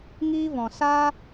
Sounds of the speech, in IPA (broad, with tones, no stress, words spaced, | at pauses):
ŋiː˦vɔ̃˨ saː˦